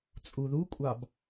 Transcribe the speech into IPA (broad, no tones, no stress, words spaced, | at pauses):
t͡sʼuðukʷʼɑb